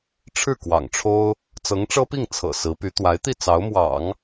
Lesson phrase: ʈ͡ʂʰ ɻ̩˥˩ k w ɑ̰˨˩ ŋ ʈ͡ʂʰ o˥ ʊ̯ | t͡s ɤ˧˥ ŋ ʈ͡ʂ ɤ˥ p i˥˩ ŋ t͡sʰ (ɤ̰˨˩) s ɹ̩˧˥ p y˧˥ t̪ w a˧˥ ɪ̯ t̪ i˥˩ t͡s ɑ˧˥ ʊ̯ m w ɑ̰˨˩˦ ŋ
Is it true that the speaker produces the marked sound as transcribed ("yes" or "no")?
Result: yes